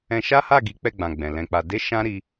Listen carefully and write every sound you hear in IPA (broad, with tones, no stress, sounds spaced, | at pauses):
ɛ̃˧ ʃ a˦ h a˦˨ ɡ i˨˦ k͡p ɛ˦˨ ɡ͡b ã˨ ɡ͡b ɛ̃˨ l ɛ̃˧ k͡p a˧ d e˦ ʃ ã˦ ɾ i˦